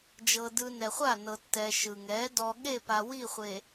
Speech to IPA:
d͡ʒɤ˨dɯ˨ nɛ˨χʷa˦˨nɤ˨ tːɛ˨ ʃɯ˨ŋɛ˨˦ dɔ˨ ɠe˦˨pa˨ wi˦˨ χʷe˨

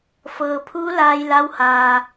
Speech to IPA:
fɤː˩pʰuː˧˥ laː˧jla˧˥w haː˩

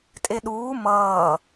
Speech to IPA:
tʼeɗuː mʌː

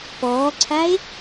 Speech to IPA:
pɔːǀʰae̯

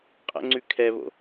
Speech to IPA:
qʼə̰ŋ͡ǀʉ kʰɛβo̰

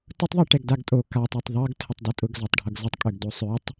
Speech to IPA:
tʊtˤðˤɛ ʈɛɡdaɡtʼo katˤatˤ ðˤʌɡ tʰətˤdʊtʼʊɡ zatˤɖʱʌɡzʊtˤkʼøɡ dosˤøtˤ

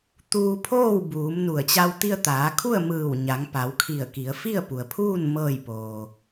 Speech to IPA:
t̪uː˧pʰoː˥˨wbuː˩˧m nu˧˩ə̯t͡ɕa˧w t̪i˧ə̯t̪aː˩˧kʰu˥˨ə̯ mɯː˧˩wɲa˩˧ŋ pa˩˧wkʰi˧˩ə̯ki˩˧ə̯ fi˥˨ə̯pu˩ə̯pʰuː˥˨n mɤː˥˨jpoː˩

